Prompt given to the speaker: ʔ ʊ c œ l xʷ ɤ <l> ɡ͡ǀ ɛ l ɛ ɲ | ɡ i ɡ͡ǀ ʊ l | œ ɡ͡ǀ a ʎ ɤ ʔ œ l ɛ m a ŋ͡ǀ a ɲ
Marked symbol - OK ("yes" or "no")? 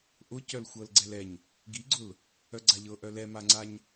yes